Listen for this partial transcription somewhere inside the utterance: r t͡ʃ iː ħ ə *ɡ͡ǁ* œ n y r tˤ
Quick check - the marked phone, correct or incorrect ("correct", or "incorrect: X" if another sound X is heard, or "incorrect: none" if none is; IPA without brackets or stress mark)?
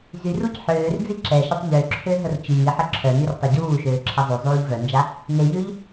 incorrect: ǁʰ